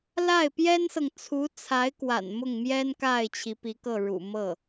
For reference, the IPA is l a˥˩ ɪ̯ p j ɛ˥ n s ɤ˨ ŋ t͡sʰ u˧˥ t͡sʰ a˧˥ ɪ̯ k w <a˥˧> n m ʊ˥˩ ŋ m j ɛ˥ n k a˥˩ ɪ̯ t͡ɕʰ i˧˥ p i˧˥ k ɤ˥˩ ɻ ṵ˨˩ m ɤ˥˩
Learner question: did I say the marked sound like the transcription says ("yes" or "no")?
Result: no